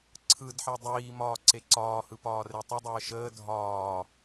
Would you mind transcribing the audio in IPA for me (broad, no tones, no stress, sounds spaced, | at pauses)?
ǀʰ ɯ d ħ ɛ dˤ iː m ɒː ǀ e ǀ ɒː h ɯ p ɒː r e tˤ ə dˤ əː ʃ əː dʱ ɒː